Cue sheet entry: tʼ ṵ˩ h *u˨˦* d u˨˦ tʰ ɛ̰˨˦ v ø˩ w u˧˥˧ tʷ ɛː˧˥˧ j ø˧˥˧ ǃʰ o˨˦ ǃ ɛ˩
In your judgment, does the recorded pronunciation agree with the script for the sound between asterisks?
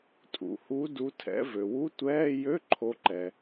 yes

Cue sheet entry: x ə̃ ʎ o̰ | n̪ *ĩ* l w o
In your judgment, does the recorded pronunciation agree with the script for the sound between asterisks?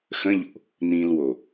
yes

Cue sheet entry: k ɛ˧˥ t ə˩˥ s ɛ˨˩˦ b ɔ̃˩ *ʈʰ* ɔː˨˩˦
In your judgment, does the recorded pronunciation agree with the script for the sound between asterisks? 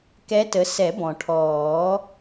yes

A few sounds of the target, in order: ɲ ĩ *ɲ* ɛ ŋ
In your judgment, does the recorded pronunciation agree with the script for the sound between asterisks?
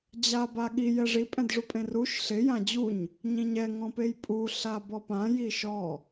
yes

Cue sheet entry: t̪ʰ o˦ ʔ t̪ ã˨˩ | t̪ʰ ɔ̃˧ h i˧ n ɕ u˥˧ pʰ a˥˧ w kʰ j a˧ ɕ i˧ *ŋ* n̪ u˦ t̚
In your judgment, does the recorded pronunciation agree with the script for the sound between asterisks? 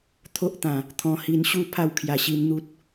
no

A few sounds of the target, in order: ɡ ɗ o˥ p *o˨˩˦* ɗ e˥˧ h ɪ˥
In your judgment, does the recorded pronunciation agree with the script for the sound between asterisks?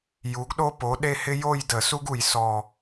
no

